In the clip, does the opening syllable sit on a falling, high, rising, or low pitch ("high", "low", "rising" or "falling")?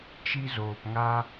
high